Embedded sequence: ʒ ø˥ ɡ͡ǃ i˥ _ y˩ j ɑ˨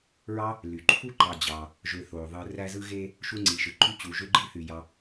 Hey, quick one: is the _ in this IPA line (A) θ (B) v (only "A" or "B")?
A